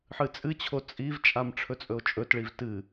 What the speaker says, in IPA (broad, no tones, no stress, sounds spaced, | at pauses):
ħ ɨ t͡sʼ ɨ t͡ɕʰ o t͡sʼ i v t͡ʃʼ a m ʈ͡ʂʰ ɵ t͡sʼ ɵ o̯ t͡ʃʼ ɵ t ɭ i v t ɨ